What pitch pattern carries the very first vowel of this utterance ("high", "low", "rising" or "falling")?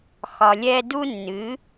low